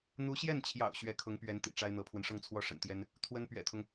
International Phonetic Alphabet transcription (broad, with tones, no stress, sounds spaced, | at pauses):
n̪ u˧˥ ɕ j ɛ˥˩ n t͡ɕʰ j ɑ̰˨˩ ʊ̯ ɕ ɥ ɛ˧˥ kʰ ʊ˧˥ ŋ p ɥ ɛ˧˥ n t̪ ḭ˨˩ ʈ͡ʂ a˥ ɪ̯ n̪ ɤ˧˥ pʰ w ə˧ n ʂ ɤ˥˧ ŋ t͡sʰ w ɔ˥˩ ʂ ə̰˨˩ n t̪ j ɛ˥ n | t̪ʰ w ə˥ n p ɥ ɛ̰˨˩ t̪ʰ ʊ˦ ŋ